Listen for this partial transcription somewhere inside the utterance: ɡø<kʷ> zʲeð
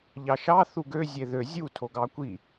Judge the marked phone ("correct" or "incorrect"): incorrect